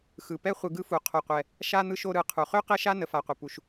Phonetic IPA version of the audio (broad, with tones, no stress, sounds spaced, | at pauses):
x ɯ˩ p ɛ˥ χʷ ɯ˨ ɡ ɯ˦ f u˩ qʰ o˨ qʷ ɛ˨ | ʃ a˥ n̪ ɯ˦ ʃ o˦ ɾ ɯ˨ qʰ u˩ χ ø˥ q ɛ˥ ʃ a˥ n ə˨ f a˨ qʷ ə˩ p u˨ ʃ